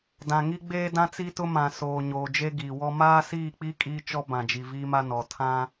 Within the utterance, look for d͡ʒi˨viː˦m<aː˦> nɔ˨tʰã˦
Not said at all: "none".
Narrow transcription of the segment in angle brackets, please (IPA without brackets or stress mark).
a˦